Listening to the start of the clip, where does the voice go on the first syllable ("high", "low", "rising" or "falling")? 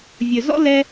low